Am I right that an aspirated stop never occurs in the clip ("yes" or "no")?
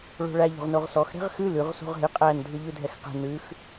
yes